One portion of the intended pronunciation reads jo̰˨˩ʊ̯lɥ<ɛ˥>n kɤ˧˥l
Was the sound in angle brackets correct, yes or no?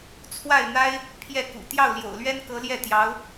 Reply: yes